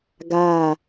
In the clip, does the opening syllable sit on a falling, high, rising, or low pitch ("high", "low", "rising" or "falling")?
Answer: falling